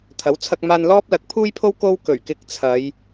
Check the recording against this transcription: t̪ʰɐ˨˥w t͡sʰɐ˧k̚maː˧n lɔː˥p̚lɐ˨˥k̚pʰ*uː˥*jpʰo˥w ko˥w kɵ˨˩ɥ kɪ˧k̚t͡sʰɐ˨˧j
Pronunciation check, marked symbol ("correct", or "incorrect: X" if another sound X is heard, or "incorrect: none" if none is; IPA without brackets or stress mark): correct